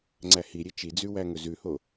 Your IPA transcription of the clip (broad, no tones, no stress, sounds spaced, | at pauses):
ŋ͡ǀ æ h i ɾʲ e t͡ʃ i d͡z ʉ w æ ŋ ɵ z ʉ h o